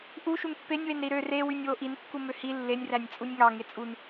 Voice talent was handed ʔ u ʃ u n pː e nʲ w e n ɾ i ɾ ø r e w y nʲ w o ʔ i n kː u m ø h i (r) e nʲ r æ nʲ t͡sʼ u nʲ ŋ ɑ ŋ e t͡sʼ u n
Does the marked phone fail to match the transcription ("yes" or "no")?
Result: yes